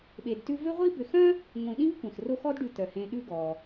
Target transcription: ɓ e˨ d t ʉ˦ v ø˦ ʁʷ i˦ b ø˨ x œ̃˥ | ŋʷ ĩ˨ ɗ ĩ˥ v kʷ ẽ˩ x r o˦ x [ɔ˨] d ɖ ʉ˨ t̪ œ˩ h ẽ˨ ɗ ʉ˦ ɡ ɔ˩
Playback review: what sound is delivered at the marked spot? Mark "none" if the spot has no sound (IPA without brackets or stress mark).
ɔ˥